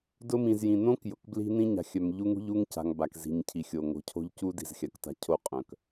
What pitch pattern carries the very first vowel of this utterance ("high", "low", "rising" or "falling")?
high